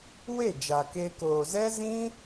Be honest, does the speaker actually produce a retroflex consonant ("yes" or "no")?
no